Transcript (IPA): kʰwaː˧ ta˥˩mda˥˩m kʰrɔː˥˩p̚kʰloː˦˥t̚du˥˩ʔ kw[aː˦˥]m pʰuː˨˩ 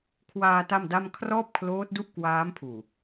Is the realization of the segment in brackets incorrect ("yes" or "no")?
no